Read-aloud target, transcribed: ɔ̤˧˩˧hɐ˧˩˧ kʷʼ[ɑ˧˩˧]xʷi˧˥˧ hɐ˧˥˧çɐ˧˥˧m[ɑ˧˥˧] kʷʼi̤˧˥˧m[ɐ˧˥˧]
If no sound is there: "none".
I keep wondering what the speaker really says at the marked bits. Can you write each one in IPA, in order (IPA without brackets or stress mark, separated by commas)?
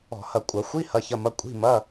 ɐ˧˩˧, ɐ˧˥˧, ɐ˧˥˧